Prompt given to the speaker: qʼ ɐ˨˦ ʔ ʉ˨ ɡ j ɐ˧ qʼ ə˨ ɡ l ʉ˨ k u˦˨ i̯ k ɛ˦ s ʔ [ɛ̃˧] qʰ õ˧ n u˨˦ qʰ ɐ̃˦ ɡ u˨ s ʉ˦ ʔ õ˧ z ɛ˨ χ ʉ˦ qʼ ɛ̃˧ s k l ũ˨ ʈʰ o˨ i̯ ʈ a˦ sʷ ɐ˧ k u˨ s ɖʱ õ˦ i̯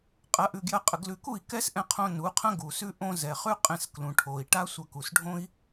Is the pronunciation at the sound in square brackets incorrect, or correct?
correct